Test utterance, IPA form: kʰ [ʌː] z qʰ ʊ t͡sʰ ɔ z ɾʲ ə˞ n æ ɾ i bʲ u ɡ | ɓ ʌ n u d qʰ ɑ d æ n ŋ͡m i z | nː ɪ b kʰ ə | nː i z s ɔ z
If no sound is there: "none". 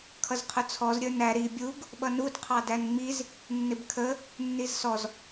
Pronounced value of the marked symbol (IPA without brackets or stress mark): ʌ